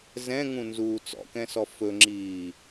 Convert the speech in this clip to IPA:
z ɛ̃ ŋ ũ n z uː t͡s ɔ̰ k ɛ̃ s ɔ f ɵ ŋ͡ǁ iː

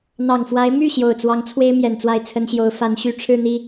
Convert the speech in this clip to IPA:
n̪ ɑ˨˩ ŋ f w a˧˥ ɪ̯ m y˥˩ ɕ j o˨˩ ʊ̯ t͡s w ɑ˧˥ ŋ t͡sʰ w e˥ ɪ̯ m j ɛ˨˩ n t͡s w a˥˩ ɪ̯ t͡sʰ ə˥ n ɕ j o˧˥ ʊ̯ f a˧˥ n ɕ y˨˩ ʈ͡ʂʰ ɻ̩˥˧ n̪ i˥˩

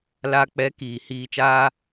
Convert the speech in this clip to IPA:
l a˧ k͡p ɛ˨˦ k iː˨ h iː˧ t͡ʃ aː˦

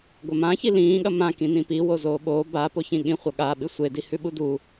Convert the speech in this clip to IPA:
ɡʷ ɐ m ã ç i l ĩː ɠ ɐ m ã k ĩ n ĩ p i w o z oː ɓ oː b a p o ç ĩ ɠ ĩ χʷ ɐ ɠ a ɓ ɨ sʷ e d i h ʉ ɓ u d u

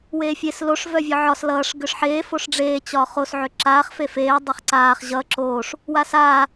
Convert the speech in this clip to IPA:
w eː fʲ e s l o ʂ v œ vʲ ɒ ʕ ɒ s l ʌː ʂ ɡ ʏ ʂ ħ eː f o ʂ ɖ͡ʐ eː t͡ɕ ɒː χ o s ʕ ʏ ǁ aː χ f e f eː dˤ ʌ χ ǀ aː χ ʑ ʌ ǁ oː ʂ | w a s aː

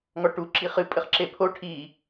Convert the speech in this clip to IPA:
ŋ ɔ ʈ u ǁ i χ ɨ pʼ ɘ χ ǁ e pʰ o ʈʰ i

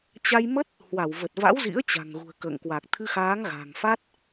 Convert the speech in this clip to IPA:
t͡ɕ a˧ j m ə˦˥ t̚ | h w a˧˩ w v ə˨˩ t̚ v a̰˧˥ w z ḭ˧˥ ə̯ t͡ɕ a̤˨˩ ŋ ɣ ṳ˨˩ ə̯ k ə̰ː˧˨ ŋ k w a˨˩ k̚ t̪ʰ ɨ˧ x aː˨˦ ŋ ɣ a̤˨˩ ŋ f a˦˥ t̚

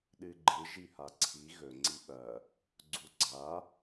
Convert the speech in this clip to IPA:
ɗ ɨ ɡ͡ǃ ɨ ʒ i h a ǀʰ i ɣ ɵ ŋ͡ǀ i ɓ ɐ | ɡ͡ǀ u ɡ͡ǀ a

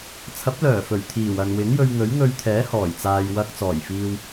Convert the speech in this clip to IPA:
t͡sʰ ɐ˨˥ p̚ l œː˨˩ f ɵ˨˩ ɥ t̪ʰ iː˨˩ w ɐ˨ n w ɪ˨˥ ŋ j ɵ˧ ɥ ŋ ɵ˨˥ ɥ ŋ ɵ˧ ɥ t̪ʰ ɛː˨˥ h ɔː˨˩ j t͡s aː˧ j w ɐ˧ k̚ t͡s ɔː˨˩ j f iː˧ w

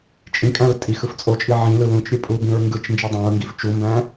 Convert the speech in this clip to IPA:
t͡ʃʼ ĩ kʼ æ̃ ɹ tʼ i x ɯ f t͡sʼ o t͡ʃʼ i ʕ ĩ l ɯ l ũ t͡ʃ ɾʲ ɯ pʼ u b ĩ ɹ ŋ ɡ ɯ t͡ʃ n d͡ʒ i dˤ æ̃ ɹ ŋ ɡ i f t͡ʃ u m b æ̃

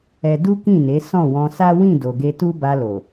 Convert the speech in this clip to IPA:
ɛ˧ d u˦ k ĩ˦˨ n e˨˦ s ɔ̃˦˨ w ɔ̃˧ s a˦ w ĩ˦˨ d o˨ ɡ e˧ t u˦ b a˧ l o˨

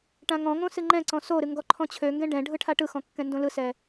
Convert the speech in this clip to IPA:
ʈ ã ŋ ɔ̃ ŋ õ s ɨ ŋ͡ǃ ɛ̃ ǀ ɔ̃ s o ɾ ɨ ŋ ɡ ɔ ǃʰ ɔ̃ t͡ɕʰ ø ŋ ɡ ɛ̃ ɖ ɛ̃ ɖʱ ɯ ʈʰ a ʈ ɯ x ɔ̃ kː ɛ̃ n d õ l ɯ s ɛ

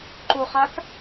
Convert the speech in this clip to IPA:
ǃ o χ a k

